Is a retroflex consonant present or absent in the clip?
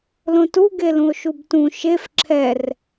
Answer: absent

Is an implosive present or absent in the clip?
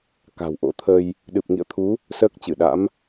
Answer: present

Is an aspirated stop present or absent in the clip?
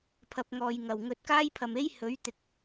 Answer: present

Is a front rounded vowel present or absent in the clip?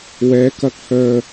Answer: present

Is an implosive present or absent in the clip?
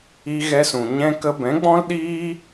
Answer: present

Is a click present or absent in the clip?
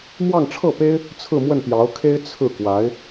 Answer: absent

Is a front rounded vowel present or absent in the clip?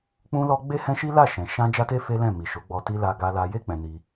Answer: absent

